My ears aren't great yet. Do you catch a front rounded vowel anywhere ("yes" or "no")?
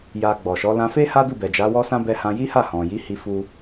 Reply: no